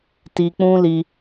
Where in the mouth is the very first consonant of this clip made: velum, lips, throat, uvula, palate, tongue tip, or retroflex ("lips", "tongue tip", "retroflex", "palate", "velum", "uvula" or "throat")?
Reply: tongue tip